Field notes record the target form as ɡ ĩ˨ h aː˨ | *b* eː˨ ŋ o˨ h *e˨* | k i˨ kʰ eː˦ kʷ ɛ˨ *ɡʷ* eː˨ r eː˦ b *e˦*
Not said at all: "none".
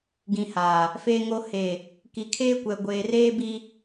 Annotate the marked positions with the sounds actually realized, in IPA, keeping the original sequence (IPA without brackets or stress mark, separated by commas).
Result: f, e˨, ɡʷ, i˦